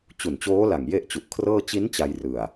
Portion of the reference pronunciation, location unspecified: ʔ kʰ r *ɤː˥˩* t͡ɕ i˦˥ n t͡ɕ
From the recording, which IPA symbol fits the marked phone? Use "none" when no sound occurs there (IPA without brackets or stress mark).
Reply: ɤː˥˩